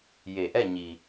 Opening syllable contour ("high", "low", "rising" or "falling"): low